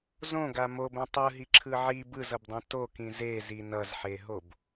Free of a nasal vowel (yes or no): no